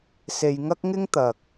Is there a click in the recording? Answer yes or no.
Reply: no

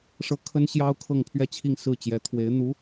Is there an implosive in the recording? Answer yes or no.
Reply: no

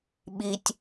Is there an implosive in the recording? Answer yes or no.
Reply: yes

